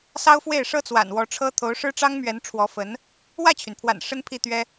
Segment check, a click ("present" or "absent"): absent